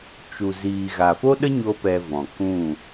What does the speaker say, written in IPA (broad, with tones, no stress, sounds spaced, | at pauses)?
t͡ʃ u˨ z iː˨ ɣ a˨ f o˦ ɗ ə˦ ɲ o˦ p ɛ˧ v ɔ̃˨ k ũ˦˨